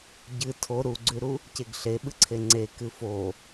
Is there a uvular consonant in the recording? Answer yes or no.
no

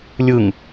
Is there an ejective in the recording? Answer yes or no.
no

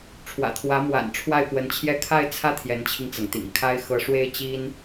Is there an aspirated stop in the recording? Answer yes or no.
yes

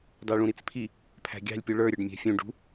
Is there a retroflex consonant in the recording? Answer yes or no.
yes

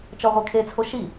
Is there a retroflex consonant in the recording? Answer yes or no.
no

